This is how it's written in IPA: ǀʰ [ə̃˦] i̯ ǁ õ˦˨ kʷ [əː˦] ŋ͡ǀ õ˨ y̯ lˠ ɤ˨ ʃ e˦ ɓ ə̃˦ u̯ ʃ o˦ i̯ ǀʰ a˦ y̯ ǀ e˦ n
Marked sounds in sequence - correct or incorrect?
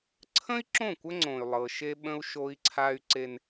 correct, incorrect

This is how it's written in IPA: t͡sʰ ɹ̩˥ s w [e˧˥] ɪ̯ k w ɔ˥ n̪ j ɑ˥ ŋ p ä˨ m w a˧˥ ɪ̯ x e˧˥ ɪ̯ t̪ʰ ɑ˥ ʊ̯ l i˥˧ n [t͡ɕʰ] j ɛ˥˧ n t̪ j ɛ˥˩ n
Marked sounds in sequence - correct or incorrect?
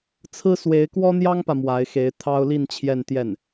correct, correct

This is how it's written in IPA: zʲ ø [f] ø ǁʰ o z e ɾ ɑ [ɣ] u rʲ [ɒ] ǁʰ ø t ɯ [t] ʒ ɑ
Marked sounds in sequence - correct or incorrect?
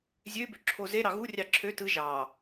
incorrect, correct, incorrect, incorrect

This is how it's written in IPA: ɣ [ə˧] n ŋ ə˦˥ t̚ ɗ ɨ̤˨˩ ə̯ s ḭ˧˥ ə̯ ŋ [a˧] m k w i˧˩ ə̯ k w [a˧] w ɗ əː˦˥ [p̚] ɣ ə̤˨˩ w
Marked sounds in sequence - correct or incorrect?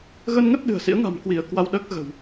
correct, incorrect, correct, incorrect

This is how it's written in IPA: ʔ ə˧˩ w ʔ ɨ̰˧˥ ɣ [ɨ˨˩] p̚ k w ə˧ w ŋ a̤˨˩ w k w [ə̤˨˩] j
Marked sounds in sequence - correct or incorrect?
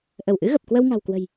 incorrect, correct

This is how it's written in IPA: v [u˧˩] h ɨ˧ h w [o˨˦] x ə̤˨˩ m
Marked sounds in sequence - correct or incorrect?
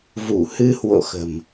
correct, incorrect

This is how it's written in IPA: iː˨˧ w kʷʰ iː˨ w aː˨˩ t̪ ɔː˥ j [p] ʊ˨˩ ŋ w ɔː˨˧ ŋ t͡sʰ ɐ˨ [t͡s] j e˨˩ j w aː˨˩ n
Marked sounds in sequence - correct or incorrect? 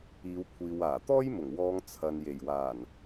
incorrect, incorrect

